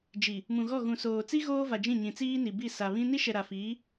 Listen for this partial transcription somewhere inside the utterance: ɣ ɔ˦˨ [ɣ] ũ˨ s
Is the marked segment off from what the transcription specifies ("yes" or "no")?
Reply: no